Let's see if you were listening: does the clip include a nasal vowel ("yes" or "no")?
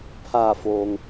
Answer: no